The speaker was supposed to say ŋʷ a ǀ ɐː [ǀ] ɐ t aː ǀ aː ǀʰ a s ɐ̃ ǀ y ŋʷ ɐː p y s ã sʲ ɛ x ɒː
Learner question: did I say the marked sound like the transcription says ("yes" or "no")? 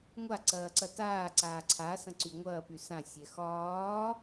yes